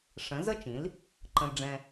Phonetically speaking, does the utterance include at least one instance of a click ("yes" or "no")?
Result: yes